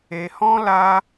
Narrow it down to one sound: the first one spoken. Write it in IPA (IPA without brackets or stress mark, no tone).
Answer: e